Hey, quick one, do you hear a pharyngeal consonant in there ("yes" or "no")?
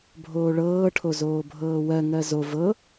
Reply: no